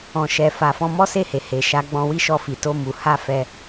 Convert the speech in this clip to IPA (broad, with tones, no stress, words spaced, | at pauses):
ɔ̃˨ʃɛ˨fa˨ fɔ̃˧mɔ˦se˦˨he˨ he˨ʃa˨˦ɡ͡bɔ̃˧ wi˦ʃɔ˧fi˨ to˧ mu˨ha˧ fɛ˦